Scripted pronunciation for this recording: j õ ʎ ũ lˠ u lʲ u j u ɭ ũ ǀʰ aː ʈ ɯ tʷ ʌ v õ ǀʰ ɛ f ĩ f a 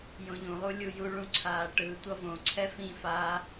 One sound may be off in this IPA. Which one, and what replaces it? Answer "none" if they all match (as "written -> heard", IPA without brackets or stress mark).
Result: none